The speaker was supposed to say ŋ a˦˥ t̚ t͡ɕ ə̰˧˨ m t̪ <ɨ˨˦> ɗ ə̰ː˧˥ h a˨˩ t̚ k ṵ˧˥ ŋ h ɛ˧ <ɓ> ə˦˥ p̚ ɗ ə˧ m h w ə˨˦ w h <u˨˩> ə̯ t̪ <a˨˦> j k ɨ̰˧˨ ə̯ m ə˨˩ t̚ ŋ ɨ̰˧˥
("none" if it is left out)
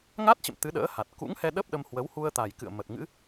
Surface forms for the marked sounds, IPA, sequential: ɨ˨˦, ɗ, u˧, a˨˩

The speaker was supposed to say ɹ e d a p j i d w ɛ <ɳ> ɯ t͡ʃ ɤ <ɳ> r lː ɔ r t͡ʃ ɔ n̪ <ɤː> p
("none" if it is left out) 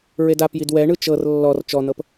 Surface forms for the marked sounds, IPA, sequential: ɳ, none, ɤ

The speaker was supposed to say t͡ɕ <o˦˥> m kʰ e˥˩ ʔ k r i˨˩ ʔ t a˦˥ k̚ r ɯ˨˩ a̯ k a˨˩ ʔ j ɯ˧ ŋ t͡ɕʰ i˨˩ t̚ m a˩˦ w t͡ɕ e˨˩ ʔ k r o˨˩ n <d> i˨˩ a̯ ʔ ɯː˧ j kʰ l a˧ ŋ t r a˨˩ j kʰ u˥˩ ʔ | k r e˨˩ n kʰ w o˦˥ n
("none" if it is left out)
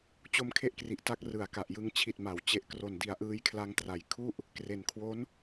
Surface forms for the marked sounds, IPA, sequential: o˦˥, d

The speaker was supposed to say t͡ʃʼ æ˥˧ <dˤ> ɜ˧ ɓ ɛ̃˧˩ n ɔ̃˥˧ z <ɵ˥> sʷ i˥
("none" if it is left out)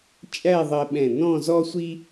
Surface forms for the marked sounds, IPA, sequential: ðˤ, ɔ˥

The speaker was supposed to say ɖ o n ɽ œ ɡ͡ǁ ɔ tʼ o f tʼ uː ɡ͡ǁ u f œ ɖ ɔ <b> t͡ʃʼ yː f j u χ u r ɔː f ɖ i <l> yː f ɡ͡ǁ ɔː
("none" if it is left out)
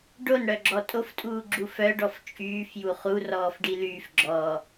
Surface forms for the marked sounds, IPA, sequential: f, l

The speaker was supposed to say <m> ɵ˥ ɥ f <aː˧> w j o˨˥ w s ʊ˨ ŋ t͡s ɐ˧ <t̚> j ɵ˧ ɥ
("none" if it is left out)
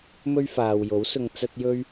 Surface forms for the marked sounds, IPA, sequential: m, aː˨, t̚

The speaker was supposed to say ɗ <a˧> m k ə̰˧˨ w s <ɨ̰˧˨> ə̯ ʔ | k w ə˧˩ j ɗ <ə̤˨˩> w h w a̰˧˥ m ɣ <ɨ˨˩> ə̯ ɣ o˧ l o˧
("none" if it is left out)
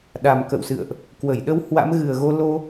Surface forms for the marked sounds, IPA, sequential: a˨˩, ɨ̰˧˨, ə˧, ɨ˨˩

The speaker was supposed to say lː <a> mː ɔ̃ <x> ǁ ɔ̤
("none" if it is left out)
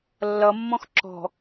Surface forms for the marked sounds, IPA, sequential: ʌ, x

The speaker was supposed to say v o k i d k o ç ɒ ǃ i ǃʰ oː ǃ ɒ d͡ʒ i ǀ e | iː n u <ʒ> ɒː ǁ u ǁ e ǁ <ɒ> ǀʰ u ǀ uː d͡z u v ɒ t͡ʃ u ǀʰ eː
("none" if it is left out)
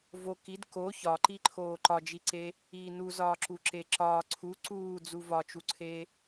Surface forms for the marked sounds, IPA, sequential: z, ɒː

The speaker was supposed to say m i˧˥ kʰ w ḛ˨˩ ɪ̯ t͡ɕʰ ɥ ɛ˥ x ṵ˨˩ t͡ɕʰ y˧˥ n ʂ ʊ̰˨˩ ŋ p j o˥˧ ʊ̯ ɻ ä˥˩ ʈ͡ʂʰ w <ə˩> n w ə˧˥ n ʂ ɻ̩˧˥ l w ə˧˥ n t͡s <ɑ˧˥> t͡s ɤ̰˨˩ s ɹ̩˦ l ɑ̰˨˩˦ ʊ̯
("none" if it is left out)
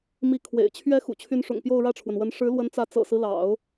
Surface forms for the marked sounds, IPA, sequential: ə˩, ä˧˥

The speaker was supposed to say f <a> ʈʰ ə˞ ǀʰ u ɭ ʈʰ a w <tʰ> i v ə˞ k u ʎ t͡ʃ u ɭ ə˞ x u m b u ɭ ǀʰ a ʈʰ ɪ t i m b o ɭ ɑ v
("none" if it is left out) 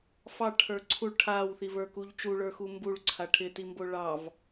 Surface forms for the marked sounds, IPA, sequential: ɑ, θ

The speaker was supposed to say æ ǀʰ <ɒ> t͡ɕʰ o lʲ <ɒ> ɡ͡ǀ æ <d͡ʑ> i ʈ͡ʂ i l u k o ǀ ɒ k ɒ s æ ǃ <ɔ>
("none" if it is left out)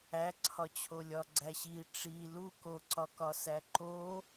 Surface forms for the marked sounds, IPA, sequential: ɒ, ɒ, ɕ, o

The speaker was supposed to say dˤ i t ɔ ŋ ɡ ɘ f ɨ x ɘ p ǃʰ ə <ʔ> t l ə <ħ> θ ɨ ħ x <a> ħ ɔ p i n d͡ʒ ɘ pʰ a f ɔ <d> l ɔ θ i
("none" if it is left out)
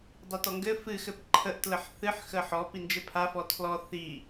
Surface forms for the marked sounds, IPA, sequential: ʔ, ħ, ə, tʰ

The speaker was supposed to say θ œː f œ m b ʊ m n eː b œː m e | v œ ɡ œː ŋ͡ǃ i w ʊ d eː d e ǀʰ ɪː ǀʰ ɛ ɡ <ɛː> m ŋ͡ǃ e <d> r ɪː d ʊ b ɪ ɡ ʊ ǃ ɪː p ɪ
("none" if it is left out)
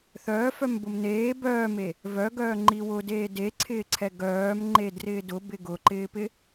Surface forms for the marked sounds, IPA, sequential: œː, d

